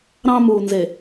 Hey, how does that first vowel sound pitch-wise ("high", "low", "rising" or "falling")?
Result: high